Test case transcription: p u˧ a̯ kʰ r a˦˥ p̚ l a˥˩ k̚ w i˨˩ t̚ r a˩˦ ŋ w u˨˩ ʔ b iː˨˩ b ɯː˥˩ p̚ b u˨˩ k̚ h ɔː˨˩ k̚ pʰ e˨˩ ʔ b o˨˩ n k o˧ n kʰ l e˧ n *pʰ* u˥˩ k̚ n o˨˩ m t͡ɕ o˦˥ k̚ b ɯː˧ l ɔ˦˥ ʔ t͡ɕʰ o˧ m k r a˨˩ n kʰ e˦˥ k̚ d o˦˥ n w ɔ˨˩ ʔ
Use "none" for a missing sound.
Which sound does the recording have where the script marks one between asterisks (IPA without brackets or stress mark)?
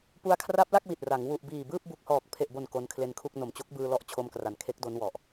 kʰ